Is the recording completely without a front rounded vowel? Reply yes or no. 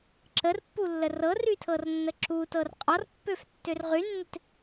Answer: no